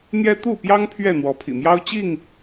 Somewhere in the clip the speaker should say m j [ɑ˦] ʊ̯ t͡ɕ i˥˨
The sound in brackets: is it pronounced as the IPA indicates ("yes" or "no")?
yes